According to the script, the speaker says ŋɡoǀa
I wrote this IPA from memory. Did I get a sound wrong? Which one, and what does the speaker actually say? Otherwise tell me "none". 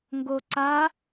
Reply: none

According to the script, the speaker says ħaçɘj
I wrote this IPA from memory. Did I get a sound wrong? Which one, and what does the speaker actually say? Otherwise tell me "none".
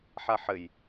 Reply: ç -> ħ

